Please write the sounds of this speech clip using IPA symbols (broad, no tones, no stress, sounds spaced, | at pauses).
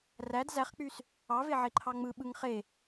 r æ d z æ χ k͡p y s | ɑ v e ʕ e ǃʰ ɑ ŋ͡m ɯ ɓ ɯ ŋ χ e